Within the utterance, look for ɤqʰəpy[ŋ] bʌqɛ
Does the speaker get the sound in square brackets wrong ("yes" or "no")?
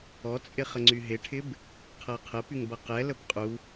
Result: no